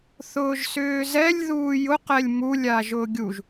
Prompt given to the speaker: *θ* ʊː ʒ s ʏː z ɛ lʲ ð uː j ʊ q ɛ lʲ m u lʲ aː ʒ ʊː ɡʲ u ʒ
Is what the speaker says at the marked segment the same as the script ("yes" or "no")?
yes